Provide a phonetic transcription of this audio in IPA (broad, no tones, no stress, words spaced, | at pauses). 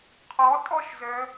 qʰɔtʼɔʃzœ